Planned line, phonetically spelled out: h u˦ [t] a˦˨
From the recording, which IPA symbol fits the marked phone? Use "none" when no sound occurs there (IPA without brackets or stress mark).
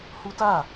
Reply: t